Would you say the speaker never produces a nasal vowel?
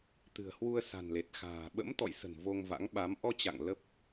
yes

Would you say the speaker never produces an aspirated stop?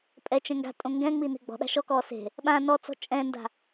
yes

